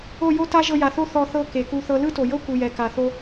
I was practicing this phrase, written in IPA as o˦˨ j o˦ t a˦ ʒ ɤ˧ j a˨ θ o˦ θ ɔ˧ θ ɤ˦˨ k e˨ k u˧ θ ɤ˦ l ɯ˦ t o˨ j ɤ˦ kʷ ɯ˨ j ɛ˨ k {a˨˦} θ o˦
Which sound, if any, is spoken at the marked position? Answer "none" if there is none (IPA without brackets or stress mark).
a˨